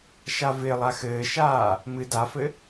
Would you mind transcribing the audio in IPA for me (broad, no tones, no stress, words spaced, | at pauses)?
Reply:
ʃavɪlˠa xɘːʃaː | mɨ dafɘ